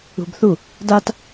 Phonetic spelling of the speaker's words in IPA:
ṳ b θ u | d a t

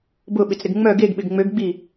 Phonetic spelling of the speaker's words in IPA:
b ʊ ɓ ɪ t͡s ɾ ɪ ɡ ŋ͡m œ ɡ e ɡ ɓ ɪ ɡ ŋ͡m ø ɡ ɡ͡b i

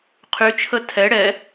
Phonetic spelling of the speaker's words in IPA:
qʰ y t͡ʃʰ ə tʰ ɛ ɽ ɛ

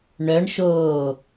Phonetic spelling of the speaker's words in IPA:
ɳ œ ɳ ʃ oː

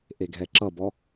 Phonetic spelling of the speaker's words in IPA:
ʔ e ɡʱ ɛ ǁ ʌ b ɔ

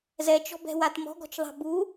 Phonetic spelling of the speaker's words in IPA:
z ɛ t͡ʃ ɔ̤ b ɛ̤ w a t m ɔ̤ ɡ ɔ̤ t͡ʃ ðˤ a̤ b u

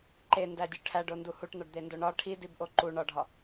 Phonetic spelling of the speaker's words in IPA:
ǃ e n d æ dʲ u ʈʰ æ ɖ o n d u h u ʈ n̪ ɒ ɖ d̪ e n d o ɳ ɒ ʈʰ i d i b ʔ o ǃ u ɳ ɒ ɖʱ ɒ

